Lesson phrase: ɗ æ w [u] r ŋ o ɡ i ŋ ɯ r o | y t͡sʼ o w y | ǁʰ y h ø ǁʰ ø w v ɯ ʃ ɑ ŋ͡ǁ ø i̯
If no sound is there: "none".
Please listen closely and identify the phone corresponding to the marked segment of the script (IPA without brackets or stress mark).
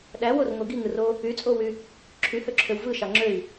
o